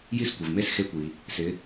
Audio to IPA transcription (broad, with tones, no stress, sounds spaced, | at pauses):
j i˦ s kʷ ɪ˩ v m e˦ s x e˨˦ kʷ i˩ | s ɪ˨˦